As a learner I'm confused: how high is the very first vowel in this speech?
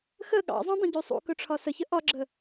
mid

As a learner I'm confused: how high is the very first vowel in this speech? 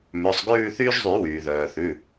mid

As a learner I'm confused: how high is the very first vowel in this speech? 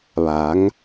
low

